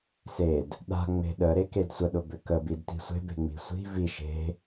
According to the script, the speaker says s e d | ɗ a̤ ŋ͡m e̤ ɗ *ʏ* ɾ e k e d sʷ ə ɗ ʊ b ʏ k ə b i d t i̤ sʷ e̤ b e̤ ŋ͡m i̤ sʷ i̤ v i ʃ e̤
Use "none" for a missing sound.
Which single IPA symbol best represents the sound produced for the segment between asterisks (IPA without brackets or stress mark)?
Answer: ə